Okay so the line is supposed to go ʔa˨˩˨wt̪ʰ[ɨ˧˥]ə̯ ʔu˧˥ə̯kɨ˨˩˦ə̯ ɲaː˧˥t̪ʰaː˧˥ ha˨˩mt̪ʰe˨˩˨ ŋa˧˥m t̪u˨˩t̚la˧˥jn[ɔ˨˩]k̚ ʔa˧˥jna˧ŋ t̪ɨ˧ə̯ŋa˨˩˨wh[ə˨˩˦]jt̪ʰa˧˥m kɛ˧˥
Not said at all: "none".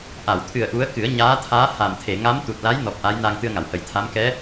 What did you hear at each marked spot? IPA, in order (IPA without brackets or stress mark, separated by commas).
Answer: ɨ˨˩, ɔ˨˩, ə˨˩˦